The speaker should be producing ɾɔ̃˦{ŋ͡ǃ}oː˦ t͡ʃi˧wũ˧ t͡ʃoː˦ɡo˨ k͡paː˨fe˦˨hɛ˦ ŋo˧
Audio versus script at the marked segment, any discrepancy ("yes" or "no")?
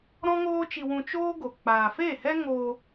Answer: yes